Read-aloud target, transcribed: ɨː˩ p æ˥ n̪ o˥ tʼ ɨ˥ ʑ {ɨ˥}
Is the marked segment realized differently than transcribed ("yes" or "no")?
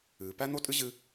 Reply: no